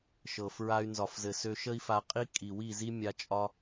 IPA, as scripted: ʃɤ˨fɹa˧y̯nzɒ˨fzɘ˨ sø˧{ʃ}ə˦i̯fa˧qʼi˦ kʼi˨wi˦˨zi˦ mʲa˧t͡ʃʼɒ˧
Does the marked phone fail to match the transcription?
no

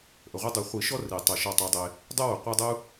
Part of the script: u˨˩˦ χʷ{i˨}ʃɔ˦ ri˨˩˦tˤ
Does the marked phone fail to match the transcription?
yes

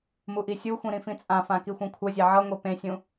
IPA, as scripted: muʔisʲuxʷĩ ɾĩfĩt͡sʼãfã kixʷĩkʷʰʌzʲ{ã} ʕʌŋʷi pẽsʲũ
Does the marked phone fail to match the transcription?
yes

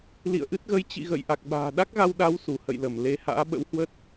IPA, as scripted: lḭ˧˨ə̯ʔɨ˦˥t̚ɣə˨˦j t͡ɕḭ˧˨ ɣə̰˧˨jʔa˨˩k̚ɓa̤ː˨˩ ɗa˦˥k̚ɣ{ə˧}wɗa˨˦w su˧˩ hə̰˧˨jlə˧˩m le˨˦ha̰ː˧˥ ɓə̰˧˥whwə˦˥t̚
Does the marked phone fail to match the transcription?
yes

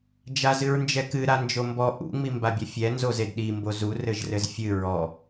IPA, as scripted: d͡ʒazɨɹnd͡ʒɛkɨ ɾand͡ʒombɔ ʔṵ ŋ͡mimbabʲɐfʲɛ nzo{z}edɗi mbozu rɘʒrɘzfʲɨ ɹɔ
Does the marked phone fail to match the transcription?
no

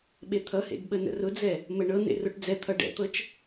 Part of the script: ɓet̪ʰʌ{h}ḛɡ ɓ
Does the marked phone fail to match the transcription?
no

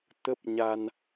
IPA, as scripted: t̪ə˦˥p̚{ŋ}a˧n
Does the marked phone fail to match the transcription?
yes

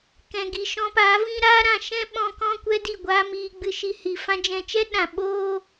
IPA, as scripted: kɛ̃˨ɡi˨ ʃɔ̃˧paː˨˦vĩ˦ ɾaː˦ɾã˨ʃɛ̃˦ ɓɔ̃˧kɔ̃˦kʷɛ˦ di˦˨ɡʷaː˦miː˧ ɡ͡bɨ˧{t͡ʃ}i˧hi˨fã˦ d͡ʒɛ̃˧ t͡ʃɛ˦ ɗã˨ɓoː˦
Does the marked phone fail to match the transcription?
yes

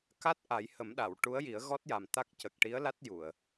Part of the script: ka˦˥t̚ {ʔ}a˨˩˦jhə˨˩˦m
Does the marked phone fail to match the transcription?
no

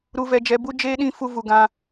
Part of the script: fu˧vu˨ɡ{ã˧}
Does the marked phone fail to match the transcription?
no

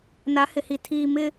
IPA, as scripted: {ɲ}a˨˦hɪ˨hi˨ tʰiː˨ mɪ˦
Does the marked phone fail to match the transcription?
yes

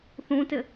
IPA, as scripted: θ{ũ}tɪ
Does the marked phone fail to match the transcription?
no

